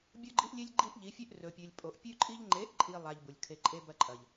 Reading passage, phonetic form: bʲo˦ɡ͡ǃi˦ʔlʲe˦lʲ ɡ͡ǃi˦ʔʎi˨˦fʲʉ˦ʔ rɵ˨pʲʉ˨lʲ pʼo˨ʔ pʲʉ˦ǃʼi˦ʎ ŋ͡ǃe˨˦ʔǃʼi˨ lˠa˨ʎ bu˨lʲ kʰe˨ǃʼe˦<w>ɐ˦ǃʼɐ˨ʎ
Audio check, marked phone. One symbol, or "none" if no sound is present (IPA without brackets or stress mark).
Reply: b